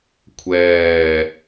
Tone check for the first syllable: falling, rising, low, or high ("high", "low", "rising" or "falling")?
low